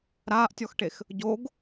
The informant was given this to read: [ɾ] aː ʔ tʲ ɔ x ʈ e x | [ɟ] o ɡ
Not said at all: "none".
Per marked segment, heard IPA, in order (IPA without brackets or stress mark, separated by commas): ɾ, ɟ